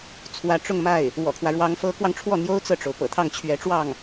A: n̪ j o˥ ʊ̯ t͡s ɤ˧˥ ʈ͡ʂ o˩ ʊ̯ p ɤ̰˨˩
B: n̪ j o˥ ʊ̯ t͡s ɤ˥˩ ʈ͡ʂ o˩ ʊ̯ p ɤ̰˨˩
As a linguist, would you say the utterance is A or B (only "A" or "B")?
B